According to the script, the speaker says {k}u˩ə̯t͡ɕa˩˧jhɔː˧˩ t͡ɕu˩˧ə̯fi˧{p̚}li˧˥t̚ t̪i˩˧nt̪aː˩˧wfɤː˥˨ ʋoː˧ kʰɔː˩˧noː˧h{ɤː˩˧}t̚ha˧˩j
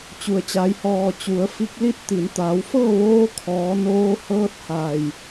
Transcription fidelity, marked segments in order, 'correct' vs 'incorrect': incorrect: t͡ɕ, incorrect: k̚, incorrect: ɤː˧˥

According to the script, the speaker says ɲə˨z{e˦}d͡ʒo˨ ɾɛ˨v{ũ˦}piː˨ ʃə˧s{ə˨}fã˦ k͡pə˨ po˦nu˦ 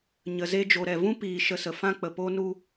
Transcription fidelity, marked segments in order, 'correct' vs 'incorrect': incorrect: e˧, correct, correct

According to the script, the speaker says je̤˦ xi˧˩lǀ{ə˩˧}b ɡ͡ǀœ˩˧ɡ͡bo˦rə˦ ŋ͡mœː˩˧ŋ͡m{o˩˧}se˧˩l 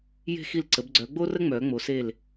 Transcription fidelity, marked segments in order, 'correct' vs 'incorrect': correct, correct

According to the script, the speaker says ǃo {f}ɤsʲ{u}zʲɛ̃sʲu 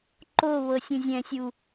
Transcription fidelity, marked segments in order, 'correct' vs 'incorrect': incorrect: β, incorrect: ũ

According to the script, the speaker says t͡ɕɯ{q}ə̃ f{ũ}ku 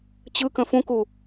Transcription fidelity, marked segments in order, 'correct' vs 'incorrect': incorrect: k, correct

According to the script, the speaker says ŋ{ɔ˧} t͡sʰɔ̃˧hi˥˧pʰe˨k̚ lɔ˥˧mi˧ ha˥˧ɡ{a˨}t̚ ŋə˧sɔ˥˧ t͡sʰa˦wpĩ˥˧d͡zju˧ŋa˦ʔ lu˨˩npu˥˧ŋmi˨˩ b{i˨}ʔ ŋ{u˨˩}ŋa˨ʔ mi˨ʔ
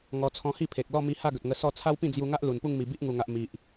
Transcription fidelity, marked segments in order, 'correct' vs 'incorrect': correct, incorrect: ə˨, incorrect: i˦, correct

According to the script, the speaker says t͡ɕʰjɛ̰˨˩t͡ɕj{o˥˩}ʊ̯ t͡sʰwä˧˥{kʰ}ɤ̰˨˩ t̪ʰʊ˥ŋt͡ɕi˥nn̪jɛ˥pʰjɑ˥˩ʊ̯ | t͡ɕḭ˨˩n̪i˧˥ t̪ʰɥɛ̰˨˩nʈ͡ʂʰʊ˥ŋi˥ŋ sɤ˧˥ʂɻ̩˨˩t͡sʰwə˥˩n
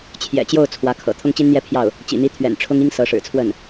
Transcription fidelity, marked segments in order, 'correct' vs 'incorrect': correct, correct

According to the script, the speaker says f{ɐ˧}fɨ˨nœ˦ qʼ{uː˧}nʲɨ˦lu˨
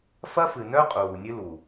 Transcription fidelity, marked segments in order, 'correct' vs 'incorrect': incorrect: ɐ˦, incorrect: uː˨

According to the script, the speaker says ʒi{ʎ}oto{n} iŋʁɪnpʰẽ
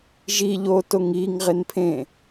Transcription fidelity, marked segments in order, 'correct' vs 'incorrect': correct, incorrect: ŋ

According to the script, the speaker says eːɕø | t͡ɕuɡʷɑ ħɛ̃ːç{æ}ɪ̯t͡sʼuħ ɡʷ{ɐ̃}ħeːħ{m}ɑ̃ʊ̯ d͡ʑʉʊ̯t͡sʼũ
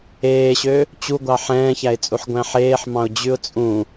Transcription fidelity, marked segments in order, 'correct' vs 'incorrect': correct, incorrect: æ̃, correct

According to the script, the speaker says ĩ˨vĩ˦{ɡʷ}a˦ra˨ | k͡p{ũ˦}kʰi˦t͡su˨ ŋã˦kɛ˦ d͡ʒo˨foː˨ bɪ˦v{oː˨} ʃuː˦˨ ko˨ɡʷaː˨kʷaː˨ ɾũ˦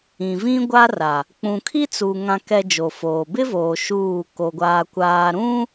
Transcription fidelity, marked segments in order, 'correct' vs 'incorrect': correct, incorrect: ũ˨, correct

